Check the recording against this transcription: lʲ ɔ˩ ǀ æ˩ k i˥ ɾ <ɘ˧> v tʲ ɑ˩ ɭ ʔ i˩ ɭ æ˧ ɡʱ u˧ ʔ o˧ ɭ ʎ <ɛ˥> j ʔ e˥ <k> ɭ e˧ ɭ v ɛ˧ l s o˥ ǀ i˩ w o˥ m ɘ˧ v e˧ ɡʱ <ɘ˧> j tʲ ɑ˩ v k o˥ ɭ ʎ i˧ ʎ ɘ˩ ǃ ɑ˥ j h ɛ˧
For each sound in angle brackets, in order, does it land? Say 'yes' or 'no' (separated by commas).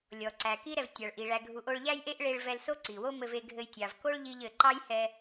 no, no, no, yes